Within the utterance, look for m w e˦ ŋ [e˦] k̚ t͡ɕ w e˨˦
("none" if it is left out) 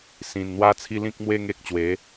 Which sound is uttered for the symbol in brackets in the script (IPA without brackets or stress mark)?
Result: e˦